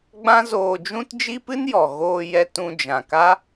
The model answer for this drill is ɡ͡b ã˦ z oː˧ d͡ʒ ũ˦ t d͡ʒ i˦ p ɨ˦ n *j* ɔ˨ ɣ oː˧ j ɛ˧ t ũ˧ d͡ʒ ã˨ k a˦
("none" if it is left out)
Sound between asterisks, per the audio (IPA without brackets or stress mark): j